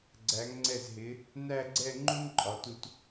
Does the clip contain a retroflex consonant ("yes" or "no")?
no